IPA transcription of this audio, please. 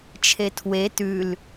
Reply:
t͡ʃʰ e tʰ w e t ʉ l

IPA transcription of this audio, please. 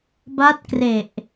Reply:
b a˦˥ t̚ k r e˨˩ ʔ

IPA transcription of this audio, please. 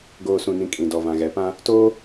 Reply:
ɡ oː˨ s ũ˨ n ĩ˨ kʼ ĩ˨ d ɔ˨ v ã˨ ɣ ɛ˨˦ p ã˦ | t oː˦

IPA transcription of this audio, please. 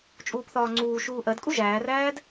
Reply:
t͡ʃʼ uː p θ ɒː ŋ͡ǀ uː ʃ uː ʔ ɜ d kʼ u ʒ æː r æː d

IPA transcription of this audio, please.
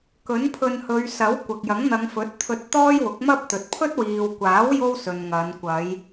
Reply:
k ɵ˨˥ n pʰ ɵ˧ n h ɵ˨˧ ɥ s ɐ˨˥ w kʷ ɐ˨ k̚ j ɐ˨˥ ŋ n̪ ɐ˨˧ ŋ f ɵ˨˥ t̚ t̪ʰ ɵ˧ t̚ t̪ ɔː˥ j w ʊ˨˥ k̚ m ɐ˥ p̚ t̪ ɵ˨ t̚ pʰ ɵ˥ t̚ w iː˨ w kʷ aː˨˥ w j o˥ w s ɵ˨ n ŋ ɐ˨˧ n kʷ ɐ˨˧ j

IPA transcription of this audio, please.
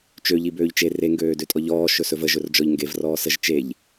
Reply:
t͡ʃ ø ʎ i b øː ʎ t͡ʃ e r e ŋ ɡ øː d ø tʼ ɔ ʎ ɔː ʃ ɵ s ɵ v ə ʒ ɵ r d͡ʒ ɔ ʎ ŋ ɡ e v r ɔː s ə ʒ t͡ʃ e ʎ

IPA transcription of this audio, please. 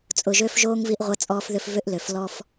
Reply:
t͡sʼ ʊ˨ ʒ ø˦ f ʒ oː˦ ŋ v i˦ ʔ ʁʷ ɐ˦ t͡sʼ ɔː˦ f ð ʏ˦ f v ʏ˦ ʔ l ø˨ f l ɔ˦ f

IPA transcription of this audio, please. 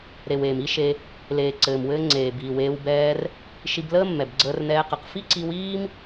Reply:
ɾ e˨ w eː˨ m i˦ ʃ e˧ | l eː˨ ǀ ɘː˨ m w ɘː˧ ŋ͡ǀ eː˨ b iː˨ w eː˧ w b ɛː˧ r | ʃ i˧ b l əː˦ mː ɛ˨ b ɡ͡ǀ əː˧ r n ɛː˧ q ə˨ q f i˦ ǀ i˧ w iː˦ m

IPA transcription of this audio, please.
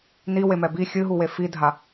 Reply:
n i w e m ɛ b i xʲ ɨ ɦ u w e f i dʱ a

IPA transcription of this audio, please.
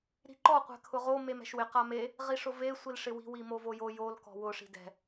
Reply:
ɾ i̤ ǃ ɔ qʷ ɛ̤ kʰ ʊ ʁ o m e m ɛ̤ ʃ w ɪ q a m e | ʁ i ʂ ʊ v e sʷ i l ʂ ɪ w i̤ w i m o v o j o j o l k ɔ̤ w ʊ ʂ i̤ d ɛ̤

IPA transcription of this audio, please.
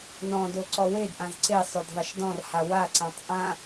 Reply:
n ɔ̃ d o ǀ ɔ w e d ʔ ã z ǀ e sˤ ʏ d ðˤ ʌ ʃ d ɔ̃ r h a w a ǀ ã tˤ ʔ ã

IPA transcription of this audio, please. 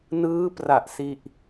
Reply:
n ɯː˦˥ p r a˨˩ ʔ s i˥˩ ʔ

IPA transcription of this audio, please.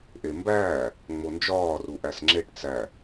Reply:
ʔ e m b æː | ŋ͡m o n d͡ʒ ɒː r u ʔ æ s ŋ͡ǁ e ʈ t͡s æ

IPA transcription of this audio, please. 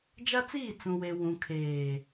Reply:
d͡ʒ a˦ t͡s iː˦˨ t͡s ũ˨ w e˨ w ũ˨ kʰ eː˨

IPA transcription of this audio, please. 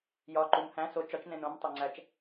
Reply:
j ɒ ǃ u m h æ̃ s o t͡ʃ ɒ t͡ʃ n ẽ n õ m tˤ e ŋ͡ǀ æ t͡ʃ

